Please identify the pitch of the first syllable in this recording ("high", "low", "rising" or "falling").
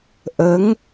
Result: rising